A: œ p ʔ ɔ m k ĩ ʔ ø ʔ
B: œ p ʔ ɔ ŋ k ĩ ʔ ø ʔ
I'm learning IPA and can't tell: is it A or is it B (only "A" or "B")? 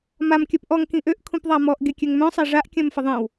B